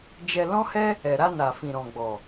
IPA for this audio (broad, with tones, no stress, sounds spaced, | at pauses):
d͡ʒ ɛ˧ l ɔ̃˦ h ɛ˦ | ɛ˧ ɾ a˧ n a˨ f ĩ˨ ɾ ɔ̃˨ ɡ͡b ɔ˨